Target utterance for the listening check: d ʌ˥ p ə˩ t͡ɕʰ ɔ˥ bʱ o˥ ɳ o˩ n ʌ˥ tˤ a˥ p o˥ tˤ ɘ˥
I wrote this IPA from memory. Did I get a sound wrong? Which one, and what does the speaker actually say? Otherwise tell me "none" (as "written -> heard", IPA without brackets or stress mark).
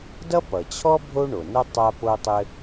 ə˩ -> ʌ˩